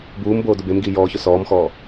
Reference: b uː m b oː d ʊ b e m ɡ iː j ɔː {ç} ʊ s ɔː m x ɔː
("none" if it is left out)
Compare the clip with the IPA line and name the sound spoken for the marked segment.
ç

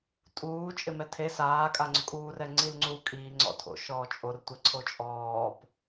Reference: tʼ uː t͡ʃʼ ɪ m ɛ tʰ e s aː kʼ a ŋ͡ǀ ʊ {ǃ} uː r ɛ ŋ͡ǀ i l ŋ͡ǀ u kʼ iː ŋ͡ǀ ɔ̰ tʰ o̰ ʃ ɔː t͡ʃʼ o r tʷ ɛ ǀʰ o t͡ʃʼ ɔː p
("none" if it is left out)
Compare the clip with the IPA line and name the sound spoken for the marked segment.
kʼ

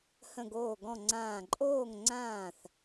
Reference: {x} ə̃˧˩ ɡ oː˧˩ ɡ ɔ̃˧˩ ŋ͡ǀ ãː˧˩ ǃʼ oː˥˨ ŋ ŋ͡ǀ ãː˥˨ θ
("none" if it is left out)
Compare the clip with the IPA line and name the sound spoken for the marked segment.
h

